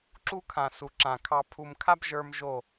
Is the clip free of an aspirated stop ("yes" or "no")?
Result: no